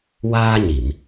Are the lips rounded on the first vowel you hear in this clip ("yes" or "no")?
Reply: no